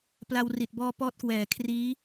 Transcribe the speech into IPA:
pla˧wri˨˩t̚bɔː˦˥ pɔː˦˥t̚kwɛː˨˩kʰriː˦˥

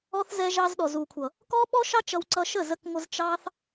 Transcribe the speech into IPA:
ɔ˦θ zɛ˧ʒɑ˧zɗɔ˨ zu˨kʷʰʌ˨ | kɔ˦ɓɔ˦ʃɑ˦ t͡ʃʌ˧wǀʌ˧ ʃə˦˨zə˧k ŋʷə˧zt͡ʃɑ˦θ

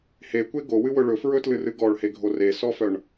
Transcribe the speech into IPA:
hekʷe ɡowɨwɵ ɭɵfɹɵtlɨrɨ ɡɔɭheɡʱo resɔfœɳ

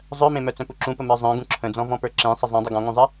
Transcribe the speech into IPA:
zˤœmẽmœ t͡sœ̃puǁũpə mə˞zˤœ̃ ɡũǁʰə̃d͡zɔ̃ vɔ̃pə˞ǁẽ sˤəzˤẽ dˤɨɡɔ̃ŋũzˤɨ

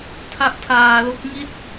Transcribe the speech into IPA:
tʰa˦˥ʔtʰaː˧lo˦˥k̚ ŋi˥˩t̚

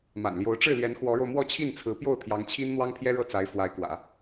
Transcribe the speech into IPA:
ma̰˨˩nljo˧˥ʊ̯ ʈ͡ʂɻ̩˥˩ljɛ˧˥n xwɔ˧˥ɻo˧ʊ̯ mwɔ˥˧t͡ɕʰi˥˩nt͡sʰɹ̩˧˥ pjo˥˩ʊ̯t̪ʰjɑ˧˥ŋt͡ɕʰi˥n n̪wɑ˥ŋpʰjɛ˥ ɻɤ˥˩t͡sa˧˥ɪ̯ fwa˧˥ɪ̯kwä̰˨˩˦

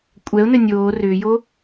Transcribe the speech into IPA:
kʷʼɛʊ̯nɘ nʲoː rʏːjo

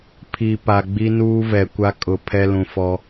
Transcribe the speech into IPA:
pʰi˨pa˨ ɡ͡bi˦nuː˦vɛ˨kʷa˦ kʼʊ˨ pʰɛ˦lũ˨fɔ˦

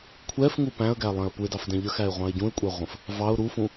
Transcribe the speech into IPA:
kʷʰɛfŋu pæ̃ə̯ɡælˠɛ̃ə̯ puɪ̯dɑfdɛ̃ ʎəxæɪ̯ʁʷɑ̃ɪ̯ ɟũɪ̯kʷʼɛʁʷə̃f | vɑʊ̯ ɾufũ

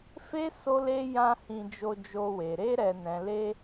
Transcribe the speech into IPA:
fe˦ so˦le˦ jã˦hĩ˧ d͡ʒo˧d͡ʒo˧we˨ ɾe˧ɾɛ˨nɛ̃˨le˧

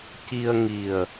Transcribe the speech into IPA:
ci˧ə̯ ŋi˨˩ə̯

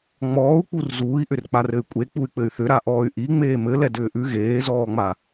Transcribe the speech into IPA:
ŋ͡mɔːu̯k͡pur zuːi̯ʔʏr k͡parɘy̯kʷʼe k͡puy̯k͡pɘy̯θʏ ɾaʔɔːy̯ʔi ŋ͡meːmɘ lɛdʏːʔʉ ɣeːzɔːŋ͡ma

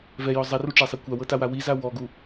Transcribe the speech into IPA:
vɛjɔ zˤɛruʈ͡ʂɛsˤɛ kʷawɤtawa wiza wɔɡu

